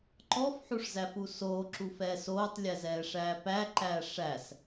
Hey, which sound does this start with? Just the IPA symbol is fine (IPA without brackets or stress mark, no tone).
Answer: ǃ